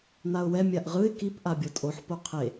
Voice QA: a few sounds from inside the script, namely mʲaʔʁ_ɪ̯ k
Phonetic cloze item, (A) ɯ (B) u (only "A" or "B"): A